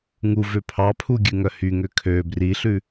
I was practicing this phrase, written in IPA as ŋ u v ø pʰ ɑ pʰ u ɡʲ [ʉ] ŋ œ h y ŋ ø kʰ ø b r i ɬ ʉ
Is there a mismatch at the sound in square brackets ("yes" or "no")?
no